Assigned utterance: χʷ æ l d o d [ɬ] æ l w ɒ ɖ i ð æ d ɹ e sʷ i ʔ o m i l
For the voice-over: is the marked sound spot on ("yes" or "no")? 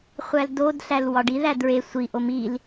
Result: yes